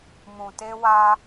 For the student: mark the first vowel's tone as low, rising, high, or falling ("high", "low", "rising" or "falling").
low